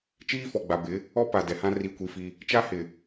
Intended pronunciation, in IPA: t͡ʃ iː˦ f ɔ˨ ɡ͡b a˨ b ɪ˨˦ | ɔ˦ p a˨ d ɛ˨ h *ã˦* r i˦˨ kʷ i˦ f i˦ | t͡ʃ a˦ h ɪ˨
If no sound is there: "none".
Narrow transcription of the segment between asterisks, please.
ã˦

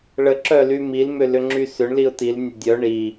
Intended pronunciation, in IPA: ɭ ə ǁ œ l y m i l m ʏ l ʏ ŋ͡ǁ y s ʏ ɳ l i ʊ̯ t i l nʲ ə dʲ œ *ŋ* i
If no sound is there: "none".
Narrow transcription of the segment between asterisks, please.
ɳ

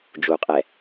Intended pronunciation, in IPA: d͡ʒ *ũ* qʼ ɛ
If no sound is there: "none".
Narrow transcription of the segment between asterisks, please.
u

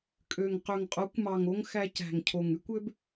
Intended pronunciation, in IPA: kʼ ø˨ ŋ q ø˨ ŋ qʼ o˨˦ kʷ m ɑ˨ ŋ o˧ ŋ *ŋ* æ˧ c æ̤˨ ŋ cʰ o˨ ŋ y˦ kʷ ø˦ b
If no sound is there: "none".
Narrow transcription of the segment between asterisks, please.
x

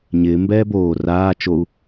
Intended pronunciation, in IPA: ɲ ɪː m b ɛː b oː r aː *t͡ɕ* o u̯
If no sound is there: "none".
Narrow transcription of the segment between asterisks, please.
t͡ʃ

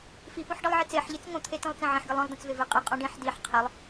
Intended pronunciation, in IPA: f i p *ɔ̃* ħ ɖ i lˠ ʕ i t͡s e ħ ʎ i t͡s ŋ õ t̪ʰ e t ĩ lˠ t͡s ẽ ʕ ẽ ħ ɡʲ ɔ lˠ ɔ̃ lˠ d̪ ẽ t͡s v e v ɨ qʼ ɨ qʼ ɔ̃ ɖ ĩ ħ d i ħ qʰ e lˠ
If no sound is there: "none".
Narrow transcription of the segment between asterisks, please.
ɔ̃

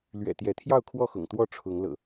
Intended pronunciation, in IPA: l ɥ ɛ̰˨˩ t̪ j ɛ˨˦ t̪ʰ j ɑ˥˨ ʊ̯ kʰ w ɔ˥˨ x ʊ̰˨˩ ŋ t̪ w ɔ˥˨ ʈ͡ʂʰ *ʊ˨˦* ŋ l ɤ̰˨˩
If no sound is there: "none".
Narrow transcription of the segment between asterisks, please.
ʊ˨˦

